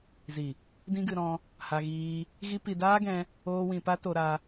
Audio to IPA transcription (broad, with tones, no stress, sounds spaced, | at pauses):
z i˨ | d ĩ˦ ɡ ɨ˧ ɾ ɔ̃˧ | h a˧ ɣ iː˧ | ɣ i˦ p i˧ d aː˦ ɡ ɛ̃˧ | oː˦ w ĩ˧ p a˦ t o˧ ɾ a˧